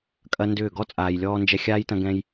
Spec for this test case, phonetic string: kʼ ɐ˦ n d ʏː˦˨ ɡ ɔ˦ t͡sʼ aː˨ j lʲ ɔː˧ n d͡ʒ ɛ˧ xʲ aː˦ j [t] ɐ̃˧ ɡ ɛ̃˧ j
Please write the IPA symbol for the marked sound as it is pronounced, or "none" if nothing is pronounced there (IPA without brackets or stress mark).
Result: t